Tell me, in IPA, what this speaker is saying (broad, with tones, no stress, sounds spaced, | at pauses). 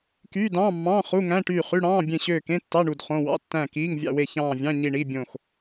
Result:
k yː˧˥˧ d ɑ̃ː˧˥˧ mː ɑ̃ː˧˥˧ χ u˧˥˧ ŋ æ̃˧˥˧ ʈ yː˦˨ χ y˧˥˧ ɽ ɑ̃ː˧˥˧ bʲ ẽ˦˨ ɕ øː˦˨ k ẽ˧˥˧ tː ɑ˧˥˧ ɳ u˦˨ d χ õ˧˥˧ w ɑ̰˧˥˧ tː æ̃˦˨ k iː˧˥˧ ŋ vʲ ɑ̰˦˨ w e˦˨ ç ɑ̃ː˦˨ vʲ ɑ̃˧˥˧ ɲ i˦˨ ɳ i˧˥˧ bʲ õ˦˨ x